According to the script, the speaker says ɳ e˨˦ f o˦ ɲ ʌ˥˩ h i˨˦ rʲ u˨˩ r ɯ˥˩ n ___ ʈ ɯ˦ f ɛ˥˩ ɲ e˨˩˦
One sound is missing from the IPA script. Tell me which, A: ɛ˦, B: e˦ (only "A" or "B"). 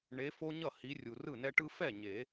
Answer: A